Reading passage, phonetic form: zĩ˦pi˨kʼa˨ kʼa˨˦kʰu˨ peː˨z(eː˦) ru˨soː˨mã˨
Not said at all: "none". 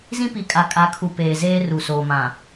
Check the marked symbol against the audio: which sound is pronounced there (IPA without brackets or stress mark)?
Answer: eː˦